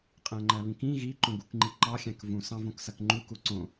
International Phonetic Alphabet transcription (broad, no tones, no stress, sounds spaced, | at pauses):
qʼ æ̃ ŋ͡ǃ æ β ĩ k ĩ ɣ i ǃ õ ɡ u k ŋ͡ǃ i ǃ ɑ xʲ æ̃ k v ũ s ɑ̃ v õ k s ɐ k ŋ͡ǃ u k u ǀ õ